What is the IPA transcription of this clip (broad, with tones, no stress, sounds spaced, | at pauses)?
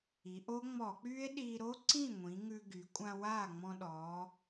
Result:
i˩˧ ʔ o˦˥ ŋ͡m ɔ˧˩˧ k͡p y˦˥ e̯ ɗ iː˧ ɾ o˦˥ ǀ ĩ˥˩ ŋʷ ĩ˩˧ ŋ ʉ˧ ɡ y˩˧ kʷʼ ã˧ w aː˥˩ ŋ͡m ɔ̃˧ ɗ ɔː˩˧